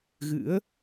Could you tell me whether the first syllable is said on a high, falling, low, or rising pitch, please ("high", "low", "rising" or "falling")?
rising